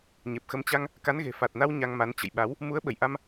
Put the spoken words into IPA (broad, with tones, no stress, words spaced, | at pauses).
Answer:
ɲe˨˩p̚xə˧m t͡ɕa˧ŋ | ka˨˦nɣe̤˨˩fa˨˩t̚na˧w ɲa˧ŋma˨˦n t͡ɕə̰˧˨jɓa˨˦w | mu˨˦ə̯ɓə˧˩jʔa˧m